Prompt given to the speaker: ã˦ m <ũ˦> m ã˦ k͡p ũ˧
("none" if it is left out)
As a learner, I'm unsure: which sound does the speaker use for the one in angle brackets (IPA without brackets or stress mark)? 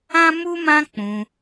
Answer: u˦